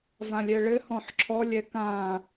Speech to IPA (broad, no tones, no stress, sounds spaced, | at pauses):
v ã lʲ ɛ ɭ ɘ h ɔ̃ ħ ǁʰ ɔ lʲ ɛ k ã